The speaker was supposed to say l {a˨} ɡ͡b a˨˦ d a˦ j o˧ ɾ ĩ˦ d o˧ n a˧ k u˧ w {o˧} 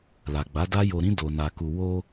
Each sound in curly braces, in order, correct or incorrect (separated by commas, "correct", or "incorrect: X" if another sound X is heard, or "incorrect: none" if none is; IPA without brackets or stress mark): correct, correct